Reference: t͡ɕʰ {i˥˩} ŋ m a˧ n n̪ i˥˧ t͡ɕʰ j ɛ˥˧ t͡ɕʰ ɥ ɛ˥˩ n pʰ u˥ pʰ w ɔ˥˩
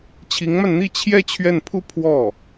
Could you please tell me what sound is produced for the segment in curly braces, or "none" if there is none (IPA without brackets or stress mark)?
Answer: i˧˥